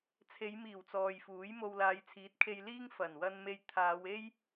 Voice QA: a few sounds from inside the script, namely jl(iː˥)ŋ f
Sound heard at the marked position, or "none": iː˥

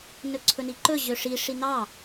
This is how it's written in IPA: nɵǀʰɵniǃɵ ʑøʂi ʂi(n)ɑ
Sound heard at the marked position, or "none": n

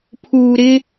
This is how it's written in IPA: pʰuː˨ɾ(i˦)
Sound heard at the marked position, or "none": ɪ˦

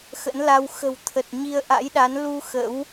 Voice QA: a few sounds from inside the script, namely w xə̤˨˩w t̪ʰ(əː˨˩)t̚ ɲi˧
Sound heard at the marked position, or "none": ə˨˩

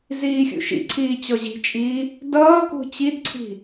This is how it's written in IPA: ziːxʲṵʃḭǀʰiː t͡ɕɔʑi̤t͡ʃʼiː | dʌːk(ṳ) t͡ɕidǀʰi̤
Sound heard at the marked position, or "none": ṳ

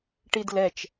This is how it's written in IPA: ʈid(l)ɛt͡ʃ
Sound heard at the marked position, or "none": l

